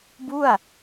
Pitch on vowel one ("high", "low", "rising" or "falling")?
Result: falling